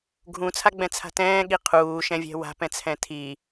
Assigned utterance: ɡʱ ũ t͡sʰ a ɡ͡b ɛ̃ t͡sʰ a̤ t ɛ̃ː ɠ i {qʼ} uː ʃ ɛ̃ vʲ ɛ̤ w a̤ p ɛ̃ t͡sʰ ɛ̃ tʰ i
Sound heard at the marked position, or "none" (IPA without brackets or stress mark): qʰ